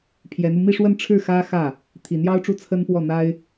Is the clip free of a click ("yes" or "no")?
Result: yes